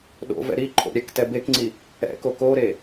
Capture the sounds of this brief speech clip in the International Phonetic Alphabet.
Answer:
ɗo̰ vɛ̰ɾi ǃʰo̰ɾʲɛk tɛbekŋ͡ǀi | ɛ̰ko koɾe

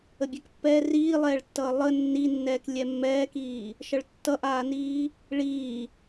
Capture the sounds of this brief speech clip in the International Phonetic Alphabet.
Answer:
əbʲɛkpːɛː riːlˠɛːɭtːʌː lˠə nːinːɛːk lʲɛmːɛːkiː | ʃʌɭtːʌʔaːniː | ɭiː

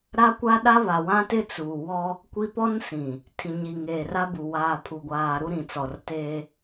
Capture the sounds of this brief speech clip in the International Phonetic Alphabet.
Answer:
ɾa˦kʷa˦ ɗa˦βa˨wã˦tɪ˦ t͡suː˨wɔ˦ | kʷi˦ pɔ˦nsĩ˨ | tʰĩ˨ɲi˨ŋeː˨ ra˦bu˨ waː˨pʰu˨ɡʷaː˨ ɾu˦ɾĩ˨ t͡sɔ˨rteː˦

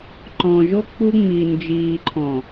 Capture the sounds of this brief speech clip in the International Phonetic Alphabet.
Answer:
ǃɔ̃˨ʒo˦ k͡pu˦ ŋ͡mi˨ nd͡ʒiː˨ǃʰɔ̃˨

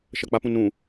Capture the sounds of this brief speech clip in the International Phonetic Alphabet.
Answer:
ʃɐk͡papũ nũ

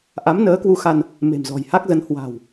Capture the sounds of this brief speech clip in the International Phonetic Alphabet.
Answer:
ʔa˨˦mnəː˨˦kwu˧xa˧n | me̤˨˩mzɔ̤˨˩jha˦˥k̚zə˨˦n hwa̤˨˩w

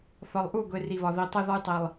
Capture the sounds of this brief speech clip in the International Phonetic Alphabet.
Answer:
θɒ˨lˠʔu˦˨ɡʷe˨ ri˨βɒ˨ ði˨ tˤe˦ ðɒ˦jtˤi˨lˠ

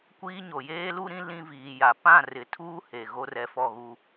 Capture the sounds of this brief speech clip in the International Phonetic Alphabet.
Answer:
kʷiː˦ɲo˨ jeː˦lu˦ɾĩ˦ lĩ˦viː˨ja˨ pã˦˨rɪ˨tʰuː˦ he˨ ɣo˦rɛ˨fɔ˦˨ ɣu˦

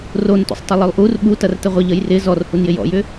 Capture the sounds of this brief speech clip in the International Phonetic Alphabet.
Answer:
rontṵsˤtˤɪ lˠʏlˠʔur ɓu tɐrtəʁʷɪ ʎəjrɪ zɔrhunjɪ jɔ̰jʏ

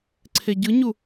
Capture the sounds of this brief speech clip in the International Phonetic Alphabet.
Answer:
ǀʰeɟɯɲu

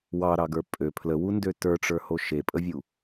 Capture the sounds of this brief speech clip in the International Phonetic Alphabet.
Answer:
wɑɾɑɡə˞ pʼø pʰləwundø tə˞ʈ͡ʂə˞ho ʃepʼəvʲu

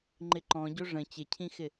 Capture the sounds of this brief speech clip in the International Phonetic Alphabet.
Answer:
ŋ͡ǃɪǃɔ̃ɟo ʐə̃ t͡ɕɪcʰĩxɪ

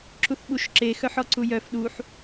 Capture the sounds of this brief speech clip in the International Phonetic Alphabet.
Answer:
ǁuθɓuʃǁe xœħɔǀujœf ɗuħ

